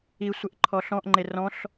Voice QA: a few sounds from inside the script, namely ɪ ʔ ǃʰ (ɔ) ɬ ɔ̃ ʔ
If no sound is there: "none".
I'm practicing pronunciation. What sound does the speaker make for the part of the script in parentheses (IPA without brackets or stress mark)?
ɔ